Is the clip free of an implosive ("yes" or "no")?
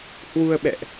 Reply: no